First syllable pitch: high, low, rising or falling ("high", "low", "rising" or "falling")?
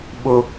high